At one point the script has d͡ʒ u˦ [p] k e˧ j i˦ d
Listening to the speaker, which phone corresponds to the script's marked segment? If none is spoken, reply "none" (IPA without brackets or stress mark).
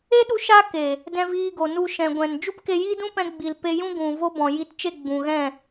p